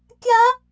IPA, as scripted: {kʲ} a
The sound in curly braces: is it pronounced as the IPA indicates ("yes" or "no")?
yes